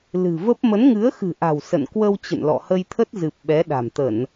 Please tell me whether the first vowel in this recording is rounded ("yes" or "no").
no